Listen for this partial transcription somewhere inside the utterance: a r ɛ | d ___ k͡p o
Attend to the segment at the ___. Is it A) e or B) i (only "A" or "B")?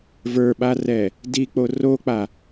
B